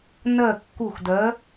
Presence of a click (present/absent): absent